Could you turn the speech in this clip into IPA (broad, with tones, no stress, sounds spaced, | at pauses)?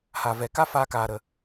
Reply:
h a˨ v ɛ˨ k a˦ f aː˧ k aː˨ ɾ ə˨